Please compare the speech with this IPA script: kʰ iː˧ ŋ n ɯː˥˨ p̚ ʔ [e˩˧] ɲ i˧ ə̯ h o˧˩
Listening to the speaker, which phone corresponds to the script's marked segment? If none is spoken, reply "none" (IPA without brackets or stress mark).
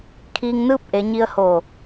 e˩˧